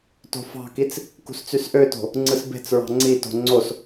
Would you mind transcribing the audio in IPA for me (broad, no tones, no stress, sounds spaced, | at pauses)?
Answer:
t o̤ f ɑ̤ k i t͡s | k ṳ s t͡s y s ʔ ø t o̤ | ŋ͡ǀ ɯ s b e̤ t͡s ɹ ɑ̤ ŋ͡ǀ i t o̤ ŋ͡ǀ o s